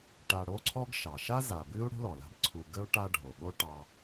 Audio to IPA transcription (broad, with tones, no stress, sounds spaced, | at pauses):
ʈ a˨ ɽ o˦ ǀʰ ɔ˦ ɡ ʃ ɑ˩ ʃ a˥ z a˩ b ɨ˥ u̯ ɽ o̤˥ l ɔ˩ l a̤˦ b ǀʰ u˨ ɡ ə˥ u̯ ʈ a˦ ɖʱ o˩ ɠ o˥ ʈ ɑ˦